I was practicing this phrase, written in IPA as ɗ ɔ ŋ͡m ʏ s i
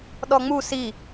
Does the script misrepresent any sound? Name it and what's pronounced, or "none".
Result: ʏ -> u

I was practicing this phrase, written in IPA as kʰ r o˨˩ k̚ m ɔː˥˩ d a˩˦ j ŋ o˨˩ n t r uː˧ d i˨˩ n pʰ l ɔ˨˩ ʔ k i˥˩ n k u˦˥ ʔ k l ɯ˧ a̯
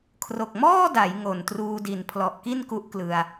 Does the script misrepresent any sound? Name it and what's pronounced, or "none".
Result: none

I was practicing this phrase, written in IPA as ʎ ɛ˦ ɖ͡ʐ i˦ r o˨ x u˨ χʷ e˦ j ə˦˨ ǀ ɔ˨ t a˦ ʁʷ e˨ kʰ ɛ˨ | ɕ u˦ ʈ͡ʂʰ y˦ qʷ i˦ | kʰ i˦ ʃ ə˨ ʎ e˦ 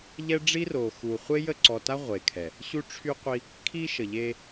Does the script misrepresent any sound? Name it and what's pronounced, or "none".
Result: none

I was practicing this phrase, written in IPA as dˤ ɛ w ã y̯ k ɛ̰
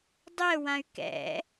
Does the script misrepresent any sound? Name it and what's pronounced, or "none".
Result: none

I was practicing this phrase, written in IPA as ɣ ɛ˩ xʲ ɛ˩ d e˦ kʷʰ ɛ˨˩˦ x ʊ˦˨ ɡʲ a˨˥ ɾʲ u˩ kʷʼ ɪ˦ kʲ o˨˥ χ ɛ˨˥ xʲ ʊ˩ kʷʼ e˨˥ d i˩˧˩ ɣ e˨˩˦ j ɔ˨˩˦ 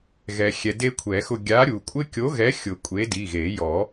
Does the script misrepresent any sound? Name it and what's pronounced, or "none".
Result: χ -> ɣ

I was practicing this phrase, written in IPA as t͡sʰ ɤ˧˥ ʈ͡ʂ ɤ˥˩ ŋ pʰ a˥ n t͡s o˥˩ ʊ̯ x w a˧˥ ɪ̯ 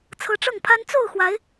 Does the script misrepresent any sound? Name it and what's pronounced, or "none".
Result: none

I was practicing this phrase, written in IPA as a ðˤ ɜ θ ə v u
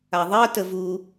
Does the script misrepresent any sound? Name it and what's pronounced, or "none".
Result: θ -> t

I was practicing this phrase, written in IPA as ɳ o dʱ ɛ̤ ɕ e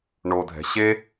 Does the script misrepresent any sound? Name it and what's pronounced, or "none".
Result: none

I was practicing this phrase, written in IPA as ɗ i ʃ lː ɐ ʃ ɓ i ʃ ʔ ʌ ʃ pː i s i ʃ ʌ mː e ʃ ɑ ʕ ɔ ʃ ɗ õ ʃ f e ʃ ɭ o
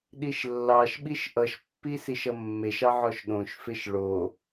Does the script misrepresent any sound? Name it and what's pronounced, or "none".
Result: ɐ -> ɑ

